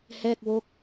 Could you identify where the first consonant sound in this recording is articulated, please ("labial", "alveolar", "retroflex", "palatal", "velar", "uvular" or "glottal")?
glottal